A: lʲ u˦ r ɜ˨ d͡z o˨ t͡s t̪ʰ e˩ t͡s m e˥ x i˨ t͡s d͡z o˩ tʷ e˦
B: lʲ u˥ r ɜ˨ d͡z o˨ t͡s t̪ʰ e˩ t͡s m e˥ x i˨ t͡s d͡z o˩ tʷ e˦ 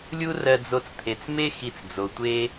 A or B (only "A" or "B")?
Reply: A